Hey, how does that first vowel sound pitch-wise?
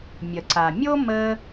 low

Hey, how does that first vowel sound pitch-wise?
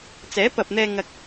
rising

